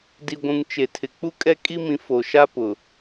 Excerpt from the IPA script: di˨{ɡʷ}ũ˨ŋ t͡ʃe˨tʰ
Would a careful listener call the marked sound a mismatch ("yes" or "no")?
no